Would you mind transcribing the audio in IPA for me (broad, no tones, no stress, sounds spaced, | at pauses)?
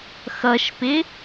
x ʌ ʃ p ɪ